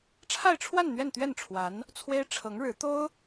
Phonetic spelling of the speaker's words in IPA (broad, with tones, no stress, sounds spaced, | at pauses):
ʈ͡ʂʰ a˥˧ ɪ̯ ʈ͡ʂʰ w a˥˧ n n̪ ɥ ɛ˥˧ n t̪ ɥ ɛ˥˩ n ʈ͡ʂʰ w a˧˥ n | t͡sʰ w e˥ ɪ̯ ʈ͡ʂʰ ɤ˧˥ ŋ ɻ ɻ̩˧˥ t̪ o˥ ʊ̯